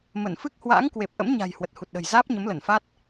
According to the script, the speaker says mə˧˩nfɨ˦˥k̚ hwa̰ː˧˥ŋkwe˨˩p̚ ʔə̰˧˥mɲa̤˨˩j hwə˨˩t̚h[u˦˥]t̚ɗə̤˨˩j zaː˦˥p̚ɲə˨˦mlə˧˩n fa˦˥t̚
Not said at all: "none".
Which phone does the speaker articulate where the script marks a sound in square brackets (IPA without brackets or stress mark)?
u˨˩